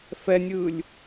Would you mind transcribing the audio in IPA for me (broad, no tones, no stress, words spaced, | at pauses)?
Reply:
fɛnʲɯːlʲ